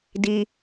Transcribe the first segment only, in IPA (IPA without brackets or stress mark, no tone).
d